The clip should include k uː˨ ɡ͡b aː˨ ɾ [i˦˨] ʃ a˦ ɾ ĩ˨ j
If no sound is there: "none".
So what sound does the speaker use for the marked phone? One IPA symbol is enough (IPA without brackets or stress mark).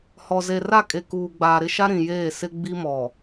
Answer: ɪ˦˨